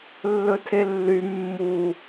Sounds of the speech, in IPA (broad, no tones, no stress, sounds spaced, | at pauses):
lː ɵ tʰ e lː y mː u